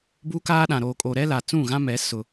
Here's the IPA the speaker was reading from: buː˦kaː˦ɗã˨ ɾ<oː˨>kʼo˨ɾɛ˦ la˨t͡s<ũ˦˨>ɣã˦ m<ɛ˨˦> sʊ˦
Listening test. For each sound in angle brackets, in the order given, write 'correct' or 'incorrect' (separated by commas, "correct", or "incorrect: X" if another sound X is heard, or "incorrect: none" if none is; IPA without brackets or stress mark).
correct, correct, correct